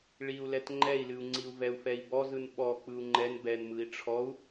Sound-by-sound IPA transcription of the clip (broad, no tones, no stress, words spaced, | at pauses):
ɭiu̯lɛt ŋ͡ǃɛi̯lɨu̯ŋ͡ǀiu̯ vɛu̯fɛi̯bɔzɯn ɓɔ k͡pɯu̯ŋ͡ǃɛn bɛnmɯi̯ ʈ͡ʂʰɔu̯